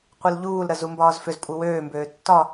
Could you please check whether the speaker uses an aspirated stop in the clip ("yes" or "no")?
no